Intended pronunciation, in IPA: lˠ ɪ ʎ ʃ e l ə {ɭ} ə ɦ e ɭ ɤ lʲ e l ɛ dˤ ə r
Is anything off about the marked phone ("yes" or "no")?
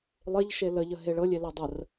yes